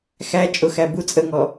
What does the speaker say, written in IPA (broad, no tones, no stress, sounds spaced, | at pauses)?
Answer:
x æ t͡ʃʼ ʊ x æ b u t͡sʼ ə ŋ ɔ